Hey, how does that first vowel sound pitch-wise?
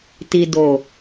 low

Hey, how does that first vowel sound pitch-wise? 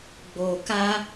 low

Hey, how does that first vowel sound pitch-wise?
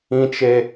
high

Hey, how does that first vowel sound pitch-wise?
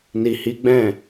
low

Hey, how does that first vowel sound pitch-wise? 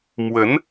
rising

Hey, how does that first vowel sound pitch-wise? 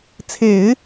low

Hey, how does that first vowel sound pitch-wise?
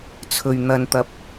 low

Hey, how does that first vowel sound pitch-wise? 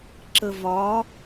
low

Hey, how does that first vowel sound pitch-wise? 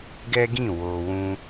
high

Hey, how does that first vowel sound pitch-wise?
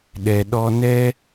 low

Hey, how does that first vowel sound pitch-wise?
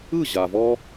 falling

